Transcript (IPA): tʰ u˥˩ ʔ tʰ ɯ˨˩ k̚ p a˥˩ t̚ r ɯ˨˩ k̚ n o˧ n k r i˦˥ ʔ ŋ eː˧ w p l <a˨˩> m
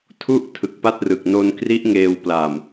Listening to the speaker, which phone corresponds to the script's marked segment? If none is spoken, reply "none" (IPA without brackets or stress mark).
a˨˩